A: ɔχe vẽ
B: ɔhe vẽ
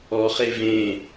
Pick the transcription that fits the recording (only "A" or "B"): A